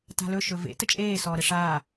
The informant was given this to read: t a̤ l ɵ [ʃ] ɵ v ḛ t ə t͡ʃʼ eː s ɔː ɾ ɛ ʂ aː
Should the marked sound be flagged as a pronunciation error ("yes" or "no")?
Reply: no